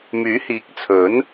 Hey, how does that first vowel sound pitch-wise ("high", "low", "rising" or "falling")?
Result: rising